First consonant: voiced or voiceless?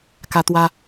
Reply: voiceless